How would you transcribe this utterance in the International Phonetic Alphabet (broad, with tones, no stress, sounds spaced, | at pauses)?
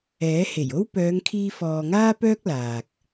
ɛː˨˥ h e˨˩ j o˥ w p œː˨˧ ŋ kʰ iː˧ f ɔː˨ ŋ aː˥ p œː˥ k̚ l aː˨ k̚